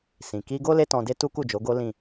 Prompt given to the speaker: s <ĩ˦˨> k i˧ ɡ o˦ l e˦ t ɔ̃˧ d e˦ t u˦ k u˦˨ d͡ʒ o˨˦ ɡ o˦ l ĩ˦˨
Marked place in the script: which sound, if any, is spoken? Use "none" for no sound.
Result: ĩ˨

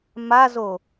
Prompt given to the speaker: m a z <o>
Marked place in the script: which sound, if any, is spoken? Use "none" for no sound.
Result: o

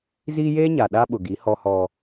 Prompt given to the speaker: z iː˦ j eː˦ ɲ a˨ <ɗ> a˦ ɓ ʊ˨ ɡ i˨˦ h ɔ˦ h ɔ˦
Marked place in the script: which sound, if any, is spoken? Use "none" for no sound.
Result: ɗ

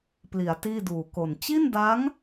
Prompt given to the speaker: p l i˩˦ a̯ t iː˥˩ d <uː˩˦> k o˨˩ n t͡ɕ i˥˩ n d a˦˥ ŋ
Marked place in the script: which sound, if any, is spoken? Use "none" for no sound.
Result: uː˨˩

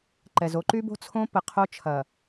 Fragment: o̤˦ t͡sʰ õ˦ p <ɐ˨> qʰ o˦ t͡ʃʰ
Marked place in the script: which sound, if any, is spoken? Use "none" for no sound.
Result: ə˨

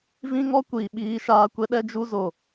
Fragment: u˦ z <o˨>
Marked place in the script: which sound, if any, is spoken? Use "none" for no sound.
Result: o˨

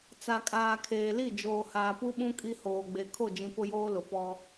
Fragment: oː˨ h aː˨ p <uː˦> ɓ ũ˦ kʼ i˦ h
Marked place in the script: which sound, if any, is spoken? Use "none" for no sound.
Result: u˦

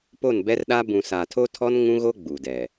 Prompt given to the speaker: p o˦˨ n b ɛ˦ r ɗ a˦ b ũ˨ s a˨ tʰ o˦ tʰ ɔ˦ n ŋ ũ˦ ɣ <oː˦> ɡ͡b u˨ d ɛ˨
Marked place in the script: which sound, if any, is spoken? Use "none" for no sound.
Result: o˦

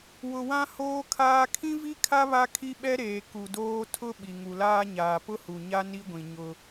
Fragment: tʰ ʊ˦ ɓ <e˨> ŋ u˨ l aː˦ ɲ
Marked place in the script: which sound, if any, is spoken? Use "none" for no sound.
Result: i˨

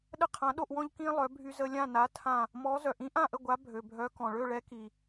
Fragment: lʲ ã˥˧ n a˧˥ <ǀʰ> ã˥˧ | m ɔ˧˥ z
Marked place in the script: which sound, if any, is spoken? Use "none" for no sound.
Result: tʰ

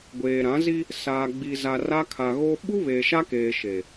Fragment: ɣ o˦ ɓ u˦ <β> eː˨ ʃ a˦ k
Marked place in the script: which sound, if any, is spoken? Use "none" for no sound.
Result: β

